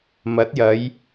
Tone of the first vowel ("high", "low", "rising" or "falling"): rising